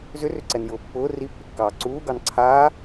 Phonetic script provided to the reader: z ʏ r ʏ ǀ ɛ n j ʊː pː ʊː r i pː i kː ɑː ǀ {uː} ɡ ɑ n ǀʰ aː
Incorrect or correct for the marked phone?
correct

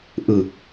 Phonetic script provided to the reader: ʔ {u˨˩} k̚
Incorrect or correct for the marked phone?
incorrect: ɯ˨˩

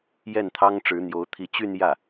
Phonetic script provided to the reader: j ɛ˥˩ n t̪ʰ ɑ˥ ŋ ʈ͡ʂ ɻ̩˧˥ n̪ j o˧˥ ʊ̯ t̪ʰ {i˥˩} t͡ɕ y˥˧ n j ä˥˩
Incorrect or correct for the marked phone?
incorrect: i˧˥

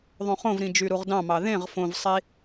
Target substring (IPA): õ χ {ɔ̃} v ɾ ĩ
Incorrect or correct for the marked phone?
incorrect: õ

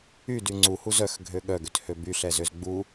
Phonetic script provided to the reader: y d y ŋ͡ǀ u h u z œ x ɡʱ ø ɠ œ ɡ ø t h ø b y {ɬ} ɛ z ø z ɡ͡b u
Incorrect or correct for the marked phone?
correct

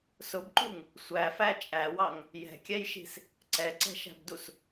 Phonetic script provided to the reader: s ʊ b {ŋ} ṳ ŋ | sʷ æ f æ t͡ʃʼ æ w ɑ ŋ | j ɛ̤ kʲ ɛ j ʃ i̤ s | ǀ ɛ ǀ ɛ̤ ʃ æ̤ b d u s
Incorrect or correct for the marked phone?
incorrect: ǃ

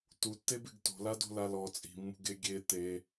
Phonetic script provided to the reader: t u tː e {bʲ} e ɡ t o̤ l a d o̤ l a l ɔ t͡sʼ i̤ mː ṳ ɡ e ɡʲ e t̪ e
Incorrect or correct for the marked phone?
incorrect: b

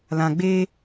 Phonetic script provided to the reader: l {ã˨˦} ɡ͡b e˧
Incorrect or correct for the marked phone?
incorrect: ã˨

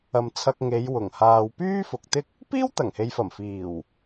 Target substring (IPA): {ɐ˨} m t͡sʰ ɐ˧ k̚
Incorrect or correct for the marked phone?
correct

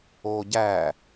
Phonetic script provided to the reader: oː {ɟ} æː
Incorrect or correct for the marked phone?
correct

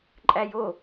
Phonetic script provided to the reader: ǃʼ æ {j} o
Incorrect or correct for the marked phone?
correct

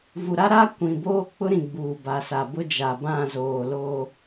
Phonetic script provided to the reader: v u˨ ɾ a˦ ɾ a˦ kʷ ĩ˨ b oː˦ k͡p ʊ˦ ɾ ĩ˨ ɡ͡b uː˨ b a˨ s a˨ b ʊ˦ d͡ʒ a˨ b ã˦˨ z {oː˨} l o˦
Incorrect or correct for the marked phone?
correct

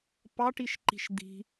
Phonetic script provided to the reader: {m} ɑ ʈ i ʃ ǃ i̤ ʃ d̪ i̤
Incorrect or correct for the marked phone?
incorrect: p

